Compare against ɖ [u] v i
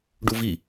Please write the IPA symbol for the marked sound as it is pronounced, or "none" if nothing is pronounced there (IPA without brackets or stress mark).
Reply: u